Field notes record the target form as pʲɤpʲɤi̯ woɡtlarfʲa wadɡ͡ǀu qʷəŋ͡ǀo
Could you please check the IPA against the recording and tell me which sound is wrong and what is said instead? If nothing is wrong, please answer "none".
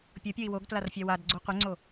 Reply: none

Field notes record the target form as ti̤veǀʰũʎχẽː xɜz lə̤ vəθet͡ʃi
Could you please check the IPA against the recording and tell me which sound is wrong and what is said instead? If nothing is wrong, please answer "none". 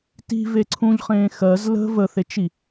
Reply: none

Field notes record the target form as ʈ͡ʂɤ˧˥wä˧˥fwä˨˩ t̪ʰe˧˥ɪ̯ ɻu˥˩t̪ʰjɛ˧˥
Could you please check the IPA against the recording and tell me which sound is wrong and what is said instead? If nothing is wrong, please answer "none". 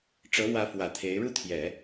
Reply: ɛ˧˥ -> ɛ˨˩˦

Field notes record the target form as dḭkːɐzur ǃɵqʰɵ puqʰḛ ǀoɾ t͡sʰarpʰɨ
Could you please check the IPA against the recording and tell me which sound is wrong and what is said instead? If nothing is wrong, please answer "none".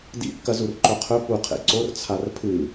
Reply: ɾ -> r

